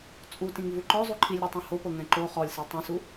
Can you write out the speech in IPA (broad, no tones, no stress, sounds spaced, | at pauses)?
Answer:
t͡sʼ u t ĩ ŋ v u ǃ ɔ zˤ u ǃʰ i lʲ ɾ ɤ tˤ ũ h o p ɤ ŋ ɛ̃ ǃ o χ ɔ lʲ s ɛ tˤ ũ s u